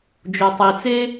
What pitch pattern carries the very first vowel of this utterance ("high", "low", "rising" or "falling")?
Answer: low